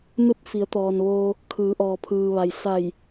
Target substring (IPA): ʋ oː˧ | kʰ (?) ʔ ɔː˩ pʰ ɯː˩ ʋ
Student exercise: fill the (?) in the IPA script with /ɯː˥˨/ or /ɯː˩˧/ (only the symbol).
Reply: ɯː˩˧